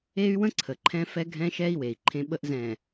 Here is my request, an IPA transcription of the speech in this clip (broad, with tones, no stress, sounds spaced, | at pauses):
e˦ y̯ w ə̃˦ ǀʰ ə˨ ǃʰ ɛ̃˦ f ɛ˦ ɡʱ ɛ̃˦ ʃ ɛ˦ i̯ w e˨ i̯ ǃʰ ẽ˦ ɓ ə˦ ʔ z ɛ̃˨